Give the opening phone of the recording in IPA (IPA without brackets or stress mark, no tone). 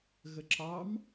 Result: ɣ